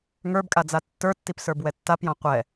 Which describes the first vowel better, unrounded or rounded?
unrounded